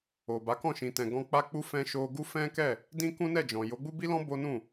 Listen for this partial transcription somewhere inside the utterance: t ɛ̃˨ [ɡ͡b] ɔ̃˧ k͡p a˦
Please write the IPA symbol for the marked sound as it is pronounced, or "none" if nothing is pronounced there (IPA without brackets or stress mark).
ɡ